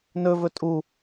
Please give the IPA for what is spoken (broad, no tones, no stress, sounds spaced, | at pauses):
n ɵ v ɵ tʼ u